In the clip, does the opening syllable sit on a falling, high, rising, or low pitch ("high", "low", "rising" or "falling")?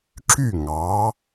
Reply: falling